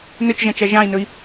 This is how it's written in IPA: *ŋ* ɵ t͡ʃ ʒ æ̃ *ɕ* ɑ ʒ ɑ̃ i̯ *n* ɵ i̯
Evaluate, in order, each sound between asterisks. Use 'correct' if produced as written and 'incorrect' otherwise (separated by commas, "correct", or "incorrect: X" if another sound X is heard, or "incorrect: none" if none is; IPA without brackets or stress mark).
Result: incorrect: n, incorrect: t͡ʃ, correct